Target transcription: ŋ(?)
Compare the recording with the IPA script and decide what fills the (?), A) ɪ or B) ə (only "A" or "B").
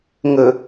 B